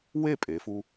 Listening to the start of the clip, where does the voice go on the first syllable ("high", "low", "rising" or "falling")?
falling